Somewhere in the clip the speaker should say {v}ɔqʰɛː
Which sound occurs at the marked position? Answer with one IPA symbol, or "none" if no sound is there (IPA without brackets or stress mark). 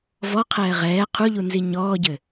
v